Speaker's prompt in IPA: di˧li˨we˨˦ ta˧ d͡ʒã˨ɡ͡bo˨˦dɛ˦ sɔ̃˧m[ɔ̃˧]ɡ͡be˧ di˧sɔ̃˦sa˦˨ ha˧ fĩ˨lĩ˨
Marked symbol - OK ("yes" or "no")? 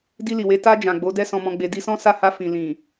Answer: yes